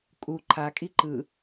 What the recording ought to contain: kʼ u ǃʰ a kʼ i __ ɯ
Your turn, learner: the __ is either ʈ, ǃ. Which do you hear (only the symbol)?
ǃ